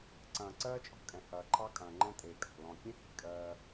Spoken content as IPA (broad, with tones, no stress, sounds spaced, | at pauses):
ǀ ɐ̃ː˨ ǀ ɜː˦ t͡ʃʼ ɔ̤˦ kʼ ɛ̃˨ h ɐː˨ ǃʰ ɑ˦ kʼ ɐ̃ː˨ ŋ͡ǃ ɛ̃˦ tʼ eː˨ kʼ ɑ̤˨ l ɔ̃˨ kʲ ẽ˦ h i̤˦˨ kʼ ɜː˦